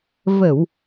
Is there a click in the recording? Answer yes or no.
no